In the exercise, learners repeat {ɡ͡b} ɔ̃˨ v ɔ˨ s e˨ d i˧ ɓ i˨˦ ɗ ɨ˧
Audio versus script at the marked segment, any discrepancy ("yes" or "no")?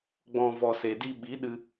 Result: no